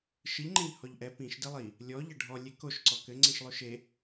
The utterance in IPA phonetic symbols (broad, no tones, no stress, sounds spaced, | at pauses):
ʃ ɨ ʎ ŋ͡ǃ ẽ ʎ h ɔ ʎ ʔ ɛ p ĩ ʃ d ɛ lˠ i | lʲ ɔ ʎ ɐ ɖʱ ɔ lʲ e k o ʃ ǀ ɔ k ɘ ŋ͡ǀ ĩ ʃ lˠ u ʃ e